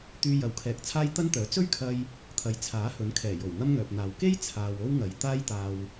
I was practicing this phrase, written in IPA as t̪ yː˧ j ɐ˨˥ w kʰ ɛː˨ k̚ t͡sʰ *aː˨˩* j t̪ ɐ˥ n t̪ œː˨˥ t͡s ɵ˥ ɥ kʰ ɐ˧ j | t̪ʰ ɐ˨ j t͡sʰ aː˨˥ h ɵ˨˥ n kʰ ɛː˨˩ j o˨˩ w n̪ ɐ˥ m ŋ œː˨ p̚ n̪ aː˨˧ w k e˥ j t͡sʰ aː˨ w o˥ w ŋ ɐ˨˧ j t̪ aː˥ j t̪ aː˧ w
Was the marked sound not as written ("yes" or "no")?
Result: yes